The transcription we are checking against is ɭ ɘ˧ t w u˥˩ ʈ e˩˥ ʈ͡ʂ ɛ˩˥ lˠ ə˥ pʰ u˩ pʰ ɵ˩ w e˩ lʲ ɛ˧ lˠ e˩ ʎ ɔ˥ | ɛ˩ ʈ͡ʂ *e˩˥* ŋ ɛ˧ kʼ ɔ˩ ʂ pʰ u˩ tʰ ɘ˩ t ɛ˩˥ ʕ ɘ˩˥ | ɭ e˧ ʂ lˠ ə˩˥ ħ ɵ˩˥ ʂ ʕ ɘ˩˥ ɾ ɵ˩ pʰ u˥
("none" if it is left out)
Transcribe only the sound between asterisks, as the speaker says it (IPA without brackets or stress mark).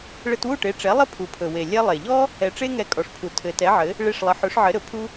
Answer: e˥